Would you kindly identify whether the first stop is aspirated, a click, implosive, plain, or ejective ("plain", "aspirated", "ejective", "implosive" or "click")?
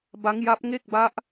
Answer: plain